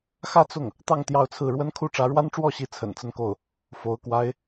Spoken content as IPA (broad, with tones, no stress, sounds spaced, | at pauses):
x ä˥˧ t͡s ʊ˥˩ ŋ | t̪ ɑ˥˧ ŋ t̪ j ɑ˥˧ ʊ̯ t͡sʰ ɹ̩˥˩ ɻ w ə˥ n kʰ u˥ ʈ͡ʂ ä˧˥ ɻ w a˥ n ʈ͡ʂ w ɔ˥˩ ɕ i˧˥ t͡sʰ ə̰˨˩ n t͡s ə˥˧ n k o˥˩ ʊ̯ | f o˧˥ ʊ̯ k w a˥ ɪ̯